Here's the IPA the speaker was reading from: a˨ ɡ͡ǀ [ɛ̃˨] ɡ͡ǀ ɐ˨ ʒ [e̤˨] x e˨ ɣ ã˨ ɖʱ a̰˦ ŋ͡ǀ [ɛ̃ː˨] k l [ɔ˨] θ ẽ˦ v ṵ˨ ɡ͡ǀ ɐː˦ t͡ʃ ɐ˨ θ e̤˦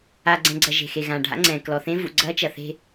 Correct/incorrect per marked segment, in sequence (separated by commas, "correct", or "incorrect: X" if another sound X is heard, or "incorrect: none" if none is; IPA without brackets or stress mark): correct, correct, correct, correct